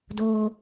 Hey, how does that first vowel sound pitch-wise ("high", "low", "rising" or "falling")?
high